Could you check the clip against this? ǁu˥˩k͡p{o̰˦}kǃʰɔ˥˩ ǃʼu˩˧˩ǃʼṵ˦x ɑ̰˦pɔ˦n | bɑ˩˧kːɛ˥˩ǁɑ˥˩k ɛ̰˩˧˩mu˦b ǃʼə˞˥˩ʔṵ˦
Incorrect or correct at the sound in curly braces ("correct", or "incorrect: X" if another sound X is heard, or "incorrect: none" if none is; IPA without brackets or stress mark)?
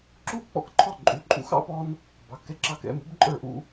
incorrect: ɔ̰˦